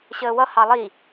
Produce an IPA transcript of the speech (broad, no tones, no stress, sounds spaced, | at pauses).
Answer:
ɕ əː w ʌ h ɑ lˠ i